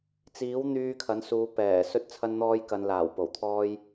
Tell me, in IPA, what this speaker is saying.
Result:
t͡s iː˨˥ w n̪ yː˧ kʰ ɐ˨˥ n s uː˨˧ p ɛː˨˩ s ɵ˥ t̚ t͡sʰ ɐ˥ n n̪ ɔː˥ j k ɐ˧ n l aː˨˩ w p o˨˩ w t̪ʰ ɔː˥ j

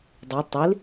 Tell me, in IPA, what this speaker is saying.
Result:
dˤ e tˤ i l

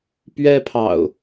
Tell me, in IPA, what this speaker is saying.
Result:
p ɥ ɛ˦ pʰ ɑ̰˨˩ ʊ̯

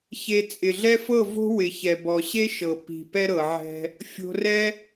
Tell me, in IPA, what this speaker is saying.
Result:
ç e˧ t͡sʼ ɪ˨ ɮ ɛ˦ f ɤ˦˨ v o̤˦ w ɪ˨ ç ɛ˨ b ɔ˨ ɕ e˦ ʃ ɤ˨ p i̤˨ p ɛ˦ ɾ ɤ˨ ʕ ɛ̤˧ | fʲ o̤˧ r ɛ˦

